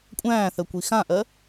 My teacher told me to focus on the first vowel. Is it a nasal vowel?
yes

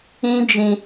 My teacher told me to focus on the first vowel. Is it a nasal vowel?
yes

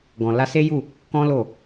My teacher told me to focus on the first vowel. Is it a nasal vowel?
yes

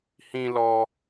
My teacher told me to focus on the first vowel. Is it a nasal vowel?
yes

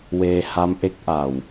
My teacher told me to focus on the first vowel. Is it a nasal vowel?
no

